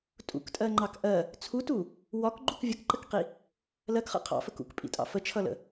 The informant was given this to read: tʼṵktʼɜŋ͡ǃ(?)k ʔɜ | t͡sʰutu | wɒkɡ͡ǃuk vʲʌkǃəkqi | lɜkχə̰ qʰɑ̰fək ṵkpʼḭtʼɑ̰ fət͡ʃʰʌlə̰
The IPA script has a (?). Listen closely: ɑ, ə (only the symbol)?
ɑ